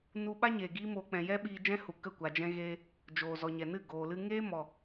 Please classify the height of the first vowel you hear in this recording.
high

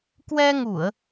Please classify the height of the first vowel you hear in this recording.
mid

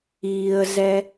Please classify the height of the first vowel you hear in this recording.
high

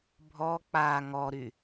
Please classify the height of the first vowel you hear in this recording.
mid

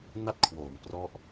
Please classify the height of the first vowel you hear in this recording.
low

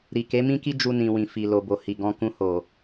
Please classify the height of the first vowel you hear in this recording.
high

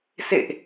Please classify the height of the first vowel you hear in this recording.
mid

